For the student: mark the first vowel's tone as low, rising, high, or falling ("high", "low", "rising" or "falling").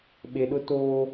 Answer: low